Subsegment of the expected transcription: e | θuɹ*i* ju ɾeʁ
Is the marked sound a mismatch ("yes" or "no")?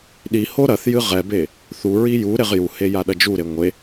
no